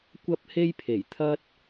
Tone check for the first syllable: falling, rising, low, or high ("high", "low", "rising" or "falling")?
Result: high